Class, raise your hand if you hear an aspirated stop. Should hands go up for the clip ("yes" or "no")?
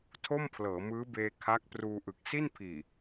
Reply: yes